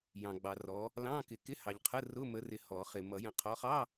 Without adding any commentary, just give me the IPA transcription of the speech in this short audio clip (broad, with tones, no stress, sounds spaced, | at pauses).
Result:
j ɑ̃˨ ɡ͡b ɑ˨ r ɔ˨˦ | l ɑ̃˧˥˧ k ɪ˨˩˦ k ɪ˧˥˧ h ɑ˨ ʎ qʰ ə˧˥˧ r ʊ˧˥˧ m ə˨˦ r ɪ˨ h ɔ˨˩˦ χ ɪ˨ m ʌ˨˩˦ j ə̃˨ qʰ ɔ˨˦ χ ɑ˧˥˧